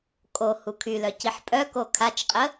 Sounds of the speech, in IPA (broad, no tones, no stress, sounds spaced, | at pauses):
kʼ o h u kʰ y l œ c i ħ pʼ œ k o kʰ a t͡ʃ qʼ ə